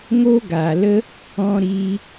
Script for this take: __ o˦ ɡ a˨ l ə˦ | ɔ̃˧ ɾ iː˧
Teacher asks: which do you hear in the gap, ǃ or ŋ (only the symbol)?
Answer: ŋ